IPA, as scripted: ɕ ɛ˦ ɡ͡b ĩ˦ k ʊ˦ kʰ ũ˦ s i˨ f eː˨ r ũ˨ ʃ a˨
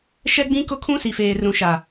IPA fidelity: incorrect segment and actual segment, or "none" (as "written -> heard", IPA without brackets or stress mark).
ɕ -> ʃ